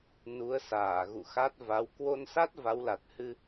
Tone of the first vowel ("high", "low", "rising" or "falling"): rising